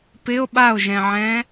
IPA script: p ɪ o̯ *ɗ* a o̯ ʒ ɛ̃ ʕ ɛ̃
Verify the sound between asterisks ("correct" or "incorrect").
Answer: incorrect